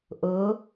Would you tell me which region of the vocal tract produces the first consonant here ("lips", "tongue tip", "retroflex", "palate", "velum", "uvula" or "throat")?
throat